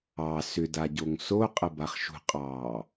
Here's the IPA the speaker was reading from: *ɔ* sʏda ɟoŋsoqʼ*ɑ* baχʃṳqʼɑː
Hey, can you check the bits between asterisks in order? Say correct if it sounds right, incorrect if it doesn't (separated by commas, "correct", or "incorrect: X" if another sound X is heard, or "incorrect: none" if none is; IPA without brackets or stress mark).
incorrect: ɑ, incorrect: ə